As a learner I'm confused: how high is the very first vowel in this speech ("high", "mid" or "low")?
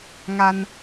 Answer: low